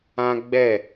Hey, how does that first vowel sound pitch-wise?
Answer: high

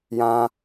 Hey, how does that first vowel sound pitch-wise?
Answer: high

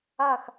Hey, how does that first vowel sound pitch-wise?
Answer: falling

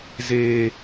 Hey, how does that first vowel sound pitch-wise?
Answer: high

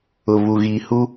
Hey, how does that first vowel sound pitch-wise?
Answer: low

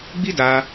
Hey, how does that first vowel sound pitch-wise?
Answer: high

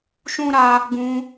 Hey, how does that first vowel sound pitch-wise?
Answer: high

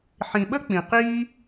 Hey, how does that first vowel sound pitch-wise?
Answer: low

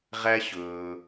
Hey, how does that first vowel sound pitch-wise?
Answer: high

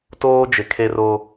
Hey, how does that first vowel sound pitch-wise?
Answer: high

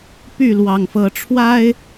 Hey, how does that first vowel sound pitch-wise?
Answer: falling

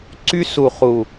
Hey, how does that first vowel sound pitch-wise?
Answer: high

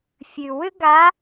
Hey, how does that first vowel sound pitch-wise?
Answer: low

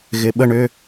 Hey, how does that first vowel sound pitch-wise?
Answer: low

